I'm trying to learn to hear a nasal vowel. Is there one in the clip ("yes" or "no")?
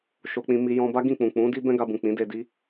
yes